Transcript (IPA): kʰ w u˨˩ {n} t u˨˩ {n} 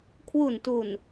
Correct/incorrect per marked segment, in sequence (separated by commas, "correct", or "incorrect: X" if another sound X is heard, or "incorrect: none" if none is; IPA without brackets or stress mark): correct, correct